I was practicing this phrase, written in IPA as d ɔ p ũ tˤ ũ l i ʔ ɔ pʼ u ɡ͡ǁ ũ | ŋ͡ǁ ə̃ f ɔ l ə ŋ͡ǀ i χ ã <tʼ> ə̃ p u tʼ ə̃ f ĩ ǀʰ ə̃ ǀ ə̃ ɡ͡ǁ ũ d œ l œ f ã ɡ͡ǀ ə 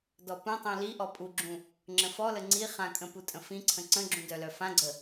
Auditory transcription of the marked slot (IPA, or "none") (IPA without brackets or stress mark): kʼ